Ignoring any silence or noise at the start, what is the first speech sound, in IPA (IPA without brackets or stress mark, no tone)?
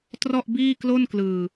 t